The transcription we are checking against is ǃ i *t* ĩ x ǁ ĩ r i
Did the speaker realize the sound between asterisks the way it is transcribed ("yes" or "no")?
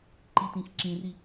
yes